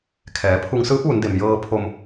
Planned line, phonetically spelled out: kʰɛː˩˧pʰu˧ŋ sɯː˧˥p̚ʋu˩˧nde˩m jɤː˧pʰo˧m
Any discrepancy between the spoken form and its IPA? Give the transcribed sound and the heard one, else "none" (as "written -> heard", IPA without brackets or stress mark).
none